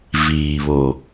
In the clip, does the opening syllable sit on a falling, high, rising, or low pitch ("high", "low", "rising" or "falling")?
low